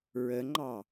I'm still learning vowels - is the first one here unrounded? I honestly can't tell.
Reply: yes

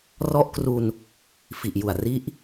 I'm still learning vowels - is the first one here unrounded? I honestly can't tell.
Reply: no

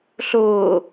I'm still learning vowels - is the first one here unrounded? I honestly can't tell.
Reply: no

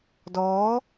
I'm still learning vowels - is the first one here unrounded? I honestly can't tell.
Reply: no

